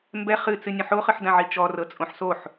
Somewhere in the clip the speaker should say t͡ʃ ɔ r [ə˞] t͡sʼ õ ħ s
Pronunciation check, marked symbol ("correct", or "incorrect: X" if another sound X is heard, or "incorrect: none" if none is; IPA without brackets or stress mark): incorrect: ɤ